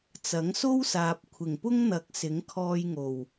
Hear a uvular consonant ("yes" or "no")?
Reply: no